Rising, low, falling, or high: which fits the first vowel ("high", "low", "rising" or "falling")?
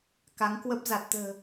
rising